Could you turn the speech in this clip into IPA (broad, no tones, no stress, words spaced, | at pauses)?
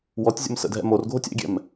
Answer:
wɔtʲzʲə̰m sə̰dʱɛ̰ morɡʱotʲ ɛ̰ɡʲɛ̰m